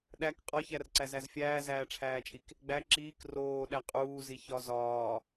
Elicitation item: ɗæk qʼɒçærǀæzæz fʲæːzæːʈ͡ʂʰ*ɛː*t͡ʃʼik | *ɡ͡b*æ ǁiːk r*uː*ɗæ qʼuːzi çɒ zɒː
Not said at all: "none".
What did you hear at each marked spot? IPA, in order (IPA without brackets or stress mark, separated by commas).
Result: æː, ɡ͡b, oː